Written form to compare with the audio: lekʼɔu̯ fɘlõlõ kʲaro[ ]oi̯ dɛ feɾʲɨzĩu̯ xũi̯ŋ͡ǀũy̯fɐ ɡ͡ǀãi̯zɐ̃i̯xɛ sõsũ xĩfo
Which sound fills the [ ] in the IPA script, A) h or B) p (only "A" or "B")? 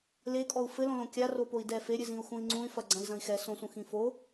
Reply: B